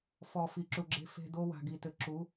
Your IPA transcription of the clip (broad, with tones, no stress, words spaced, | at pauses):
fɔ˨fi˨ǁu˨ɡ͡ǁe̤˦ fe̤˦ do˦wa̤˨ɡi˨tɘ˨ ǁu˨˦